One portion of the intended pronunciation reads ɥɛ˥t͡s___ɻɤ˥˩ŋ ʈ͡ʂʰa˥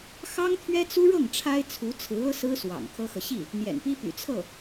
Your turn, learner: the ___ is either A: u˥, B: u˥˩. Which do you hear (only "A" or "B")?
A